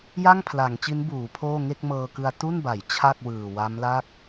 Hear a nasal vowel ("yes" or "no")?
no